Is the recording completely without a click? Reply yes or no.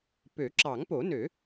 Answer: no